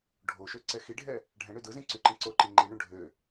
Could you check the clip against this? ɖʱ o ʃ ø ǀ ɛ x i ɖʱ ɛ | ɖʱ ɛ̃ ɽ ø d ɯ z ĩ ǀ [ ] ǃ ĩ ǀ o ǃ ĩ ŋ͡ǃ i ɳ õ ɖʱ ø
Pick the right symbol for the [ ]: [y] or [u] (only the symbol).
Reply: y